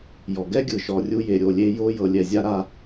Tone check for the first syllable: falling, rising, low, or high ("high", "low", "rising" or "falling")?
low